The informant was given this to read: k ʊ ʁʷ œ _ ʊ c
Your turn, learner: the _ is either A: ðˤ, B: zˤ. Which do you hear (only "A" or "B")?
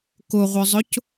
B